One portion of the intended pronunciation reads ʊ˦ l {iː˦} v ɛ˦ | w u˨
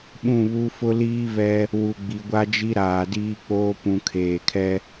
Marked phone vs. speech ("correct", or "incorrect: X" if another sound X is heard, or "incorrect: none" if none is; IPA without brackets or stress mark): correct